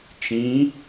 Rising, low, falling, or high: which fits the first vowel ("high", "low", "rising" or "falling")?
rising